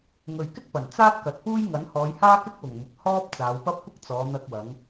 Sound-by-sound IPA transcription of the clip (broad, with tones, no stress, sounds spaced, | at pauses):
ŋ ɵ˨ ɥ k ɪ˥ k̚ p ɐ˨˩ n t͡s aː˥ t̚ k ɐ˨ t̚ p uː˥ j ŋ ɐ˨˥ n h ɔː˨˧ j h aː˥ k ɪ˥ k̚ w ʊ˨˩ ŋ m ʊ˨ k̚ h ɔː˥ p̚ t͡s aː˨˧ w p ɐ˥ p̚ kʷ ɪ˥ k̚ t͡s ɔː˨˧ n̪ ɐ˧ k̚ w ɐ˨˧ ŋ